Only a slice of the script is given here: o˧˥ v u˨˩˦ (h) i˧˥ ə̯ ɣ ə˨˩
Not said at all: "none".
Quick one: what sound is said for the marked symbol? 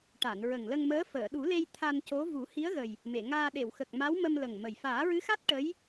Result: h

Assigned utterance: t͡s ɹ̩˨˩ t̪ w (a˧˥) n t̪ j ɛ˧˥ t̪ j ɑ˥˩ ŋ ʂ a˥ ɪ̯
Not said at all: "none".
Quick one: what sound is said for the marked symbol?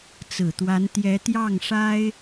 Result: a˧˥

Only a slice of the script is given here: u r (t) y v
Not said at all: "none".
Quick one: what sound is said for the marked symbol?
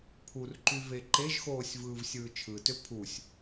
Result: ǃ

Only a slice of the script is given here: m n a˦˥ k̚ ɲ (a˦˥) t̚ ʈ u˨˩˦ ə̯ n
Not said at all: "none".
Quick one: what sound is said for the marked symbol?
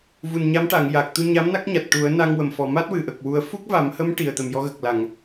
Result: a˨˩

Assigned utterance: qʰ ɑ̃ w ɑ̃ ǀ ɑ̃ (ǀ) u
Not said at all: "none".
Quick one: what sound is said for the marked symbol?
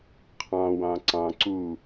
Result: ǀ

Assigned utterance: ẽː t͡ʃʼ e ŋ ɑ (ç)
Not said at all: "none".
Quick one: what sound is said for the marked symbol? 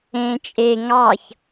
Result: ç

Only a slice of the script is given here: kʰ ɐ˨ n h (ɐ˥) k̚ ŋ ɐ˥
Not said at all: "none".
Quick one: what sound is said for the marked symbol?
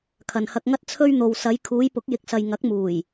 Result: ɐ˧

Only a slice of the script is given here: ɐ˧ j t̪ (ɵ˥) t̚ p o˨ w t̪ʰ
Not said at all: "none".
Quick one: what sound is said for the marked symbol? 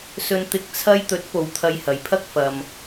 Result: ɵ˨˥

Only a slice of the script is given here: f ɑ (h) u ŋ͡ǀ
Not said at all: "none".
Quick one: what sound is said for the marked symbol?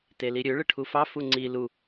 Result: f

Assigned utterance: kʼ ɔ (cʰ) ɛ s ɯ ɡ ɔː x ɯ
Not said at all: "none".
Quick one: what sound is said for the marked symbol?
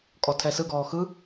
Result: tʰ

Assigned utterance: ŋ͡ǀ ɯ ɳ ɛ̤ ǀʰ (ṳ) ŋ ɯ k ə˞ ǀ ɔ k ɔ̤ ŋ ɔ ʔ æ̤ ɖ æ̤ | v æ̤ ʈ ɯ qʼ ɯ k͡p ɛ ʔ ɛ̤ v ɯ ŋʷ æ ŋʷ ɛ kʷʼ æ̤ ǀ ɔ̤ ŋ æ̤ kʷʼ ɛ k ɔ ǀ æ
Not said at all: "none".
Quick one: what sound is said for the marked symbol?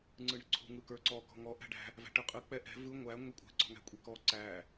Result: ṳ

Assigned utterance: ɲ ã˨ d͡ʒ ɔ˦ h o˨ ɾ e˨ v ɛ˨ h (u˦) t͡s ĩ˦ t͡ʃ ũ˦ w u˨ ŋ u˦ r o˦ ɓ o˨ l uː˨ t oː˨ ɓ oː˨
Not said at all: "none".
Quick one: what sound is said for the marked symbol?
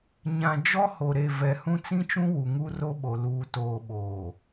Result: ũ˦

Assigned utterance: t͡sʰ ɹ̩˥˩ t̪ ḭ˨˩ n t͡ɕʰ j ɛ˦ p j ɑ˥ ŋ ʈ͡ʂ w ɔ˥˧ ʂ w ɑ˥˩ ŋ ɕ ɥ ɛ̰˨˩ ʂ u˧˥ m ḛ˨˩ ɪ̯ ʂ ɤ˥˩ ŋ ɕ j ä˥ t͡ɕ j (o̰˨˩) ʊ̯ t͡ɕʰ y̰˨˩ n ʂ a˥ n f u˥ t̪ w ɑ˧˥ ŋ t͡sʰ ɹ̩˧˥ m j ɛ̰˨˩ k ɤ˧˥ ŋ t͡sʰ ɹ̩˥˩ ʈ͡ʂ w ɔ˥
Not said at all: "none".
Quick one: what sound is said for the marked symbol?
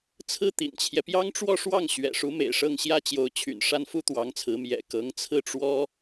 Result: o˧˥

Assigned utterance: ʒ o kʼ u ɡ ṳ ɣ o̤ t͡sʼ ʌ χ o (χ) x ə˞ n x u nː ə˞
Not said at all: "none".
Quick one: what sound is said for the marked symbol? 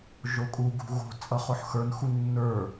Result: ħ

